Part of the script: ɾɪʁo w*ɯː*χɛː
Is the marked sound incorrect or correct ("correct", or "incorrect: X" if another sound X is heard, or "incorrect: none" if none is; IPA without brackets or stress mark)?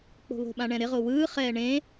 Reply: correct